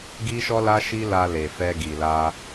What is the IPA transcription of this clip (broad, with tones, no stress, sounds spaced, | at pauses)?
ɡ i˦ ʃ ɔ˦ l a˦ ʃ i˦ l a˧ l e˨ f ɛ˧ ɡ i˨ l a˧